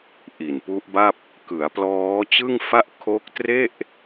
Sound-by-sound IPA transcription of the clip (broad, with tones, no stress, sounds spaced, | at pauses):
ʔ i˨˩ n p u˦˥ ʔ b a˥˩ p̚ | k ɯ˩˦ a̯ p l ɔː˦˥ t͡ɕ ɯ˥˩ ŋ f a˥˩ ʔ kʰ o˦˥ k̚ t r e˥˩ ʔ